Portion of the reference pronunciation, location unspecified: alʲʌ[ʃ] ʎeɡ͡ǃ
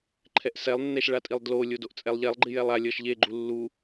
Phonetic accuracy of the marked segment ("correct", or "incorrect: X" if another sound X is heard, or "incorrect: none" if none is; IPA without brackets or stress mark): correct